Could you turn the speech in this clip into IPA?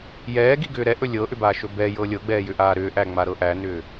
jɛːɡiɡʏː ɾɛʔɵ lʲɤʔʏbaːʃɵ bɛjɤ lʲɤɡ͡bɛːjʏʔaː ɾʏːʔæŋ͡maɾɤ ʔænʏː

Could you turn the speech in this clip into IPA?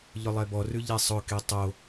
ʎʊlˠɛbɔrʉ ʎɛsˤʊke tˤo

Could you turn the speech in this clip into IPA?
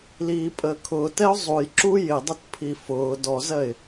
liːpʼəːkʰʊːtɛʊ̯ zˤujǁu jɪdˤətpʰi fʊː dɔzɜɪ̯

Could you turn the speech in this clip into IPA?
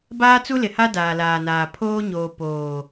baː˦t͡su˦lɪ˨ha˦ daː˨laː˨naː˨ pʰoː˦ɲoː˨ poː˨

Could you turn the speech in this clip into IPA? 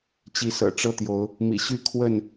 t͡ɕi˨˦sɤ̰˨˩ʈ͡ʂɤ˦t̪jo˨˦ʊ̯ | mḭ˨˩ɕy˦kʰwə˥˨n

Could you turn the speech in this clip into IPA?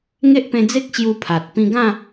ŋe˦ʔpẽ˧d͡ze˦k̚ ɕju˧pʰa˨t̚ pĩ˧ɡã˥˧

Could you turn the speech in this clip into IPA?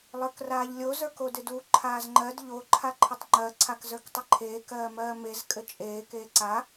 lˠə˞kraːʎlʲo zə˞kodɪdu ǃʰaːzŋ͡ǃɜd ʎo ǃʰaǃʰɪtˤŋ͡ǃɜ ǀʰakzə˞ktˤɘǃʰeː kɜːmɜːmez kʼɘt͡ʃʼeː keːǀa

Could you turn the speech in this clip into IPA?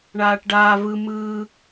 ɳaːʈɖaː vɯ mɯː

